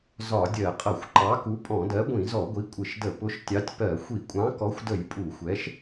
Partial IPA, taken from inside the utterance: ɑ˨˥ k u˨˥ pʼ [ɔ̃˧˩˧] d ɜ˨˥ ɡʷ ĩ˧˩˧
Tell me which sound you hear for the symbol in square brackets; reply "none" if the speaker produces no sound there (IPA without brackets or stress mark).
ɔ̃˧˩˧